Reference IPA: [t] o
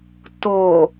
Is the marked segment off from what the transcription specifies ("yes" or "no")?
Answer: no